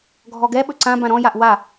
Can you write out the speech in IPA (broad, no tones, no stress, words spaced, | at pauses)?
ɡʱɔɡɛ ɓɵǀã bãɾɔ̃jaʔ wa